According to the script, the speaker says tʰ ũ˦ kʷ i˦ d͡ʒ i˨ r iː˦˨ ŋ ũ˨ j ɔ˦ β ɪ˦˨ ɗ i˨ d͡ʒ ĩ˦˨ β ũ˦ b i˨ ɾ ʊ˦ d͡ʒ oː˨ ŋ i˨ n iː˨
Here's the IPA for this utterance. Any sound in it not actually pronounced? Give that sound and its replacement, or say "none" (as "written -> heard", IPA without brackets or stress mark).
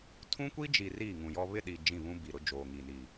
none